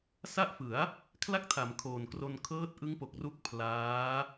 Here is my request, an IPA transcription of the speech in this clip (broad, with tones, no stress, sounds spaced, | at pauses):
s a˦˥ ʔ f ɯ˩˦ a̯ | kʰ l a˥˩ k̚ tʰ a˩˦ m kʰ oː˨˩ n k r o˧ n kʰ ɤː˦˥ t̚ ʔ ɯ˦˥ ŋ p o˨˩ k̚ r u˦˥ k̚ pʰ l aː˦˥